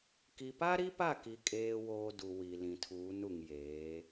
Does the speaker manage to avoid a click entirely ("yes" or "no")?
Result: yes